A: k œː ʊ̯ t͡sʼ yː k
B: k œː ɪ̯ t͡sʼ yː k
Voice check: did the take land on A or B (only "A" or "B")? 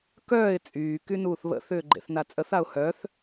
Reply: B